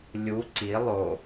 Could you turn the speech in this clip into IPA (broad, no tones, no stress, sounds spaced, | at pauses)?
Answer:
lʲ u ǀ i lˠ o